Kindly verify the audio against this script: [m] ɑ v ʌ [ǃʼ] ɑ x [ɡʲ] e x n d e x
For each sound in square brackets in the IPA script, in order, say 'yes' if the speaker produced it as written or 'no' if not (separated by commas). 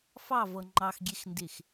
no, no, yes